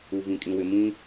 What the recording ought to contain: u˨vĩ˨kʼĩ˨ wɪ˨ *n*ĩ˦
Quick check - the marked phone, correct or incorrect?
incorrect